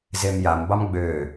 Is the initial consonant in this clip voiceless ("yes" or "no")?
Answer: no